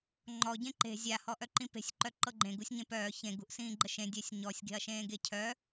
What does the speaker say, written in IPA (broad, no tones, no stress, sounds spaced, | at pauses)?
ŋ͡ǃ ɔ ɟ ẽ ǃ e̤ zʲ a h ɔ ʔ œ ǃ ĩ p e̤ sʲ ǃ œ ǃ ɤ ɡ͡ǃ ẽ ɡ u sʲ ɲ ẽ p œː ç ẽ ɡ ṳ ʔ s ĩː ɡ͡ǃ ə ʃ ẽ dʲ œ sʲ ɲ ɔ sʲ ɡ e̤ ɐ̯ ʃ ẽː ɡ e cʰ œ